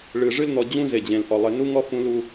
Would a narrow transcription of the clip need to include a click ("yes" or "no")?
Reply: no